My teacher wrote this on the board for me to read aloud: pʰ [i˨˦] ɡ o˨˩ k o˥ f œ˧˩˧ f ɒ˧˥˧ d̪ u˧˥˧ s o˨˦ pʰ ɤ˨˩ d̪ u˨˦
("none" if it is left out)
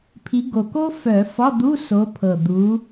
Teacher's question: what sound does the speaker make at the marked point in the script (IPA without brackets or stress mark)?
i˨˦